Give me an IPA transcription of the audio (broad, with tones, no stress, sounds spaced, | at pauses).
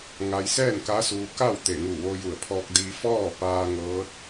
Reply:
ŋ a˧ j s ɛː˥˨ n k a˧˥ s uː˧ k a˥˨ w t̪ e˧˩ ŋ u˧˩ ʋ o˧ j u˧˩ ə̯ pʰ ɔː˧ k̚ d i˧ f ɔː˥˨ p aː˧ ŋ ɤː˧˥ t̚